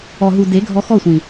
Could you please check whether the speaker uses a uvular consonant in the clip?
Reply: no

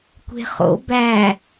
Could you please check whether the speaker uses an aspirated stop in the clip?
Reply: no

